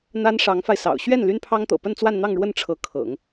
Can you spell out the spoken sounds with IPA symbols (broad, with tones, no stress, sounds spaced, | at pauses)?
n̪ a˥ n ʂ ɑ˧˥ ŋ f a˧ ɪ̯ s ɑ̰˨˩ ʊ̯ ɕ ɥ ɛ˥˩ n l y˥ n pʰ ɑ˥ ŋ t̪ ɤ̰˨˩ p ə˥˧ n t͡s w a˥˧ n n̪ ɑ˥˧ ŋ ɻ w ə˥˩ n ʈ͡ʂʰ ɤ˧˥ kʰ ɤ̰˨˩˦ ŋ